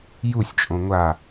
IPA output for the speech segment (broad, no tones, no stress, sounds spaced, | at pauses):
j u sʲ t͡ʃʼ õ ŋʷ a